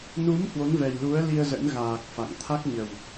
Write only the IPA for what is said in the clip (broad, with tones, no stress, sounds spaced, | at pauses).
n u˨˦ m h w o˨˦ n v ɛ˨˩ j l u˨˦ ə̯ l i˧ ə̯ z ə̰˧˥ n ɣ aː˨˩ k̚ f a̰˧˨ ŋ t̪ʰ a˦˥ k̚ ɲ ə˨˩ w